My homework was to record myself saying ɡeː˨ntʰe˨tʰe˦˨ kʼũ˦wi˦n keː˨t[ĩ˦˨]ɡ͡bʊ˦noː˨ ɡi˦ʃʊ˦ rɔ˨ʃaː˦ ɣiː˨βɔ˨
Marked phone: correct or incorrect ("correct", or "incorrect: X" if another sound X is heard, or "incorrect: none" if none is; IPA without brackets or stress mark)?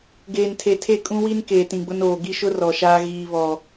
incorrect: ĩ˨